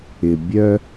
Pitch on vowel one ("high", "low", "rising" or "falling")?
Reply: low